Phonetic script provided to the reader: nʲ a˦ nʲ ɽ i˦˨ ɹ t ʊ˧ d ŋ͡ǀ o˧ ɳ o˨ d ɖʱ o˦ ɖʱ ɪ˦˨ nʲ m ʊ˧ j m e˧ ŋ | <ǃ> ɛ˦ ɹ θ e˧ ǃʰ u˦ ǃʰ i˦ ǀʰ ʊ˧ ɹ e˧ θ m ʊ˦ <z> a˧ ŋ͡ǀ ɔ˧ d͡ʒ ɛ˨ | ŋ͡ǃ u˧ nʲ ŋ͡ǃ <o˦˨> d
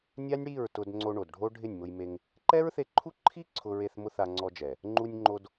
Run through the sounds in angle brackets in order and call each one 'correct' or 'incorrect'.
correct, incorrect, incorrect

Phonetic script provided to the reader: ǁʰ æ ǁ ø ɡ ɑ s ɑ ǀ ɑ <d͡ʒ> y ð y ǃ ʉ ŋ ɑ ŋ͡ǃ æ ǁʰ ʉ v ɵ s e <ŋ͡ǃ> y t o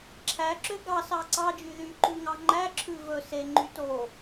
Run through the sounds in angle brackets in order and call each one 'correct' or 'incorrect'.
correct, correct

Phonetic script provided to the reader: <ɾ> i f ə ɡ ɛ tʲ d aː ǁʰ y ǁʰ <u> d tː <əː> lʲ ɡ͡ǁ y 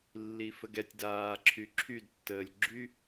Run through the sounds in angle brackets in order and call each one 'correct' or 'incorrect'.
incorrect, incorrect, correct

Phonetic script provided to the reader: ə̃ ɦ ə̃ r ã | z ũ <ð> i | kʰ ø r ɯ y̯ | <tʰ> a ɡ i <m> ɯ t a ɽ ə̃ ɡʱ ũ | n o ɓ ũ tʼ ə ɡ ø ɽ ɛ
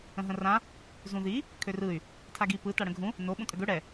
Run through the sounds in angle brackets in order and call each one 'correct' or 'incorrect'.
correct, correct, incorrect

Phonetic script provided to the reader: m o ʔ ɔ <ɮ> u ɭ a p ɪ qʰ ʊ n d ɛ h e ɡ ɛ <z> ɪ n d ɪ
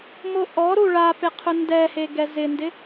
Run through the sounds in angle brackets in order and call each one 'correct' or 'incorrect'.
incorrect, correct

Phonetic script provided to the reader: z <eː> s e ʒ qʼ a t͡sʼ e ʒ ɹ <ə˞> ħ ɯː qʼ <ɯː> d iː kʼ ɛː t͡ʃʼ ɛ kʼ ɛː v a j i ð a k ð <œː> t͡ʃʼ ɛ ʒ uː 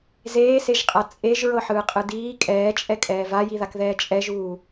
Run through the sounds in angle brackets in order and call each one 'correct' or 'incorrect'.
correct, incorrect, incorrect, incorrect

